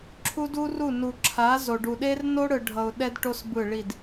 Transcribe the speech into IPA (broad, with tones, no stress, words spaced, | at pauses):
ǁʰu˦du˦ru˦˨nu˨ ǁʰa˨˦zo˨ɖu˨ ɗe˦rno˦ɽɯ˨ ɖʱʌ˨ʊ̯ɗɛ˦dʈo˦s bɯ˦˨ɭi˦˨d